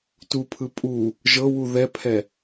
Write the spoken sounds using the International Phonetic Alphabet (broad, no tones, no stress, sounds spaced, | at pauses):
t u pʰ ɯ pʼ u | ʒ ɤ w u ð ɛ pʰ ɛ